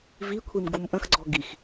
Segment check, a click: present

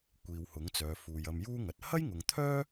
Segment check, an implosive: absent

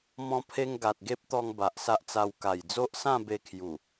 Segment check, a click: absent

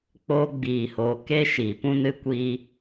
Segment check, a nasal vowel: present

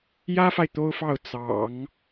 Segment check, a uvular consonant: absent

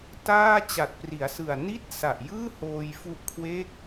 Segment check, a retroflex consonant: absent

